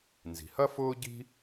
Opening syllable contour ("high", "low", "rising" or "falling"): low